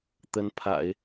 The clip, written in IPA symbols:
t̪ ə˧˥ n pʰ a̰˨˩˦ ɪ̯

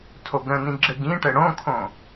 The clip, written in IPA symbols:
tʰ o ɡ ɾ ə̃ n ĩ ɡ͡ǁ ɘ ɡ ĩ ʈ ɘ ɽ õ kʰ õ

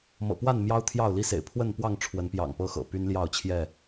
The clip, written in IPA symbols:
m ɤ̰˨˩ p w a˥˨ n m j ɑ˦ ʊ̯ t̪ʰ j ɑ˥˨ ʊ̯ l i˦ s ḛ˨˩ ɪ̯ pʰ w ə˥˨ n p w ɑ˥˨ ŋ ʈ͡ʂʰ w ə˨˦ n p j ɑ̰˨˩ ŋ p ɤ˦ x ɤ̰˨˩ p y˦ n l j ɑ˥˨ ʊ̯ t͡ɕʰ j ɛ˥˨

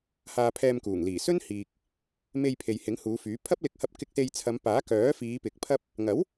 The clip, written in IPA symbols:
h aː˧ pʰ ɛː˧ m k uː˨˩ ŋ l iː˨˩ s ɵ˥ n h iː˨ k̚ | m e˧ j pʰ e˨ j h ɪ˨˥ ŋ h uː˨˧ f yː˨˥ pʰ ɐ˥ p̚ l ɪ˧ k̚ h ɐ˧ p̚ k ɪ˧ k̚ s e˧ j t͡sʰ ɐ˨˧ m p aː˨˥ k œː˨˥ f iː˨˧ p ɪ˨ k̚ pʰ ɐ˥ p̚ | ŋ ɐ˨˥ w

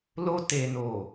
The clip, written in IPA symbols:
l o˧ t e˨ n o˨

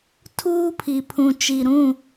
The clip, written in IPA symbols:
tʰ uː˦ pʰ i˨ pʰ ũ˨ t͡ʃ i˨ ɾ ũ˦˨

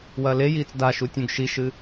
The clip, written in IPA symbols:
w ɐː l e j iː t͡s d a ʃ u tʲ ũ ɡ ʃ i ʃ ɨ

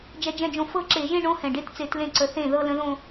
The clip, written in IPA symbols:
d͡ʒ ɛ˦˥ d͡ʒ ɛ̃˥˧ d͡ʒ õ˥˩ f ɤ˥˧ ǁ e˧˩˧ ʒ ẽ˥˧ ɳ õ˦˥ h ɛ̃˨˩ ɖ e˦˥ t t͡s e˧˩˧ t l ẽ˥˩ ǀ ə˨˦ θ ẽ˥˩ ð ɤ˥˧ l ə̃˦˥ ð õ˥˧

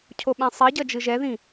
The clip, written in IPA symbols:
cʰ o ɓ ɛ̃ sˤ i ɟ ʌ d͡ʒ ɯ ʒ ɛ ð ĩ

